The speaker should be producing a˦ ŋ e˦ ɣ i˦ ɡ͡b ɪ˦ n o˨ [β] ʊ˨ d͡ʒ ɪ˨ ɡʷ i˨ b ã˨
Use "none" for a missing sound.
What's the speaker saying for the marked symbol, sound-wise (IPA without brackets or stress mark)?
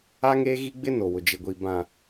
w